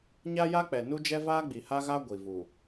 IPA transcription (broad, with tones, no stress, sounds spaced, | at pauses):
ɲ a˦ j a˦ k͡p ɛ˨ n u˦ d͡ʒ ɛ˦ v aː˦ ɡ͡b i˨ h a˦ ɣ a˦ ɡʷ i˨ v u˨